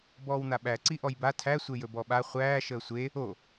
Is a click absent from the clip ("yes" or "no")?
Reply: no